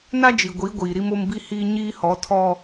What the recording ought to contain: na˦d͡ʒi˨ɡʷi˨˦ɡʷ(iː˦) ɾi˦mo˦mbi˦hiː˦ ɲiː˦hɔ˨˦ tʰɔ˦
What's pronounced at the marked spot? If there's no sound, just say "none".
iː˨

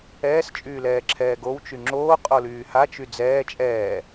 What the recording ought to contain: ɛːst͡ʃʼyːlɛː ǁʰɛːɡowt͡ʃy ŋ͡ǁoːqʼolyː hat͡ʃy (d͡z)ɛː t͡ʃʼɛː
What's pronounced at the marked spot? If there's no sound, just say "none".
d͡z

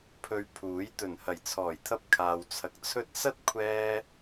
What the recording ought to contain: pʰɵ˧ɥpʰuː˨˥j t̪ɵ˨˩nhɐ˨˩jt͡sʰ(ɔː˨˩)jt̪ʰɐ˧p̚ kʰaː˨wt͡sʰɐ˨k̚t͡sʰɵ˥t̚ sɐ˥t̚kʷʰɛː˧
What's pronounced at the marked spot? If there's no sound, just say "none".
ɔː˨˩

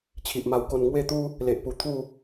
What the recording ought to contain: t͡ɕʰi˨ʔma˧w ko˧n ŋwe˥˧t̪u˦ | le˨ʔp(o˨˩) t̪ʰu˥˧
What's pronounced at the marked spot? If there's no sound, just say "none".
u˨˩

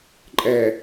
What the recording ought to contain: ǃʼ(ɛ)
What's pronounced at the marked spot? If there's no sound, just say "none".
ɛ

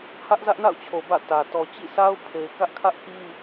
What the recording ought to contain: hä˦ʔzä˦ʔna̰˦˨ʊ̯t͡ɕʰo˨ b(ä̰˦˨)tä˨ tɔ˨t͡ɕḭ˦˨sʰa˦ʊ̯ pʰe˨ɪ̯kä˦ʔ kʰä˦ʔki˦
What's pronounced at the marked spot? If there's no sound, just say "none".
ä̰˦˨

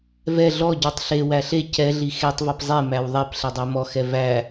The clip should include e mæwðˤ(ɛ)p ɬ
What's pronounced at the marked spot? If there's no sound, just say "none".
ɛ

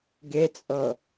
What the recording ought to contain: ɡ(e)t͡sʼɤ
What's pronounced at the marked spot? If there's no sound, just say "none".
e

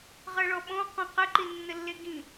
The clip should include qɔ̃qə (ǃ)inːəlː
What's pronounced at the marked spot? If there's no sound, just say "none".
ǃ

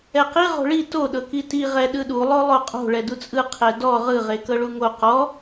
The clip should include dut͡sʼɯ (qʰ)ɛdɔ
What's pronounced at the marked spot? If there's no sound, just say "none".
qʰ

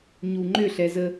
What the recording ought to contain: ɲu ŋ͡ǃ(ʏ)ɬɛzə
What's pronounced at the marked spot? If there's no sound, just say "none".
ʏ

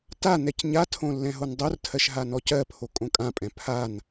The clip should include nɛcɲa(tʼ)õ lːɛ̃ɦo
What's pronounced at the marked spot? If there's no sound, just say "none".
tʰ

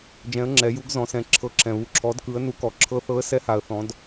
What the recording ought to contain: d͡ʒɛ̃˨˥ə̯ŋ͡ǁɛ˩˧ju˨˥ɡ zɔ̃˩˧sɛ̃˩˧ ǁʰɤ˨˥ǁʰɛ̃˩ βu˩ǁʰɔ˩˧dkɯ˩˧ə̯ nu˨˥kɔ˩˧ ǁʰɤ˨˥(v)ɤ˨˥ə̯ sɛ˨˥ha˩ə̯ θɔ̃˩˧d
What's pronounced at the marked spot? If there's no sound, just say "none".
θ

